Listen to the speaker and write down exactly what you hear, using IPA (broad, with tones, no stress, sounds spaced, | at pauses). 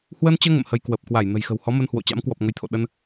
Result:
h w əː˧ n t͡ɕ əː˧ ŋ ə̰˧˨ m h ə˧ j k w ə˨˩ p̚ k w a˧˩ j n ə̤˨˩ j x ə̤˨˩ w h ɔ˨˦ m ə˧ n h w o̰˧˨ t͡ɕ a̰˧˥ m k w ɔ˨˩ p̚ ŋ ə˨˦ j t̪ʰ o̰˧˨ ɗ ə˧ n